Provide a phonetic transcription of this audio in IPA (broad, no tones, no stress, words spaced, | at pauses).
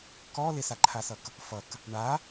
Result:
kɔ lɪsaǃʰasʌk | fʌk | ɳa